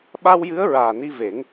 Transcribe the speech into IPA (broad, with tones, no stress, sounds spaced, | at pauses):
ɓ a˧ w j ɨ˧˥ ə̯ ɹ aː˨˩ n i˧ v e˨˩˦ ŋ